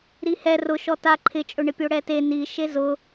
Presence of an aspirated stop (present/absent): present